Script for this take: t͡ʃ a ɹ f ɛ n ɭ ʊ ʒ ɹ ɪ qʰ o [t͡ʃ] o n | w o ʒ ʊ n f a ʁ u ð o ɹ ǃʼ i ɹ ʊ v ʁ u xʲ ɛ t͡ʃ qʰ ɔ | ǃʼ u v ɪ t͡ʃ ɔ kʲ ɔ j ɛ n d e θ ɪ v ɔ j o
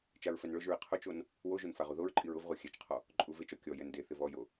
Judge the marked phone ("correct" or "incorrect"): correct